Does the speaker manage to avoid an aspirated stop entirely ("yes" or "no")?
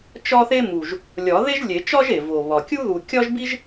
yes